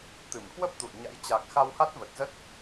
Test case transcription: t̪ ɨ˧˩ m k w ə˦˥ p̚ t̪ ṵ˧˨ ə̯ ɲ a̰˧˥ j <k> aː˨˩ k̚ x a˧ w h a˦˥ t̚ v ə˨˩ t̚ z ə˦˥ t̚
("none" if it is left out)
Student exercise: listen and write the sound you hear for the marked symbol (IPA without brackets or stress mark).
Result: t͡ɕ